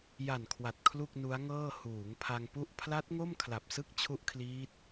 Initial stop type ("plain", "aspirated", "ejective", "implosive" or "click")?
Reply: aspirated